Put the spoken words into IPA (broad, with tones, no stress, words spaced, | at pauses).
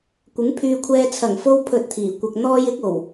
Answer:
kʷɪ˨˥ŋpʰyː˧kʷʰɛː˧ t͡sʰɐ˨˩ŋfo˧w pʰɵ˧t̚t̪ʰiː˨˩ kʷɐ˨k̚n̪ɔː˧jɪ˨˥k̚ o˨˩w